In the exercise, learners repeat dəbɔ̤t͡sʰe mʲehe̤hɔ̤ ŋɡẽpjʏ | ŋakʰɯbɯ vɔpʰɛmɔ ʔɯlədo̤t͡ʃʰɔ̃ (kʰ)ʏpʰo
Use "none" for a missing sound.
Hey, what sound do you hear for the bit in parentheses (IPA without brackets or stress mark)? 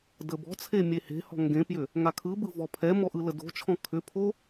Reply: kʰ